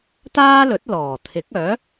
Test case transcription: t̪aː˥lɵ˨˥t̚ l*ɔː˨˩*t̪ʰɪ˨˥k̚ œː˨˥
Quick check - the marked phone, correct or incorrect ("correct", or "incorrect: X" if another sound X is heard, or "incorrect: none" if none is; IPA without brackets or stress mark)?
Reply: correct